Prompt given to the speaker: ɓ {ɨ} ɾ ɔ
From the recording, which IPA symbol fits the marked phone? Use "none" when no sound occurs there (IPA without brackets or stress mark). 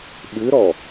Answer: ɨ